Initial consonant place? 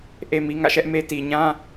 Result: glottal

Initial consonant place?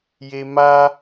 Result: palatal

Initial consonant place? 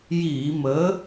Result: palatal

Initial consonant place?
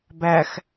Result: labial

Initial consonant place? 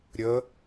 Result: alveolar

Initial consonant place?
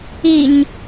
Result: palatal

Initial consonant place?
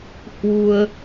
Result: glottal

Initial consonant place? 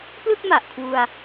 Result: labial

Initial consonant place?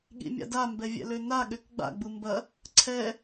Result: velar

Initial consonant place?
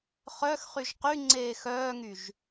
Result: uvular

